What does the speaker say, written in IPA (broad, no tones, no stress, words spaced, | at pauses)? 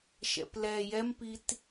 ʃɛ̰plɛ jɛmpit